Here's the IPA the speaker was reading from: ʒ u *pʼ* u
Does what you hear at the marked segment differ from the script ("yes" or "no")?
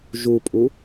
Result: no